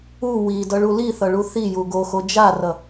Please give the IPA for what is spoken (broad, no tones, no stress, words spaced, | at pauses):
u widʌɭu liθʌɭu θiju ɡoxo d͡ʒarʌ